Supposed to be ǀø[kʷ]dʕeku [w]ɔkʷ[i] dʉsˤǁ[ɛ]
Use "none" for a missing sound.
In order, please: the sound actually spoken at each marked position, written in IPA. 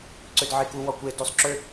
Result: none, w, e, ø

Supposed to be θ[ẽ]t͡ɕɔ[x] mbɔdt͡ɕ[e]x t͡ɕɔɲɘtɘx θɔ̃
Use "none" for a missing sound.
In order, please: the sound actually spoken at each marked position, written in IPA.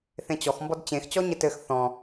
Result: ẽ, x, ẽ

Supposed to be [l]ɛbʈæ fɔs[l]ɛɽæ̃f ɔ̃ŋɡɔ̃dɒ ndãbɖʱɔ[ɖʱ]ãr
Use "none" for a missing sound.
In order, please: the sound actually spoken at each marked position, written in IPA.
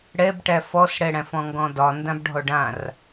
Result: ɽ, ɽ, ɖ

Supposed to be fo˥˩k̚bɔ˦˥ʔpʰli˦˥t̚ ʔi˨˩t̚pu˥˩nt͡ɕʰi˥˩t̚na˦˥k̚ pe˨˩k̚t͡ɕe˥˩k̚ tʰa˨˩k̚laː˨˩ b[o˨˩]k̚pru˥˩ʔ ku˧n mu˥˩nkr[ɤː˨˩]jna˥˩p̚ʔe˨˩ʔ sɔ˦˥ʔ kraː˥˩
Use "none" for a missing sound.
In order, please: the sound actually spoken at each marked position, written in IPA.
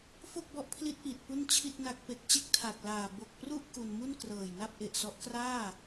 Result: o˨˩, ɤː˨˩

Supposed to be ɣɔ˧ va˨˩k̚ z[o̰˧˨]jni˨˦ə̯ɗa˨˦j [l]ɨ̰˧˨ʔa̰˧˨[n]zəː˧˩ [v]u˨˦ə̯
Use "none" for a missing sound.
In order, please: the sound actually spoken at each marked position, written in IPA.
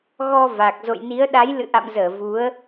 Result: o̰˧˨, l, m, v

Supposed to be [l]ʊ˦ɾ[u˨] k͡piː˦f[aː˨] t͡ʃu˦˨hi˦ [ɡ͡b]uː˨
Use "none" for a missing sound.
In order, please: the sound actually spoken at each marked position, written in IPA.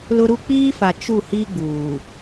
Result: l, u˦, a˨, ɡ͡b

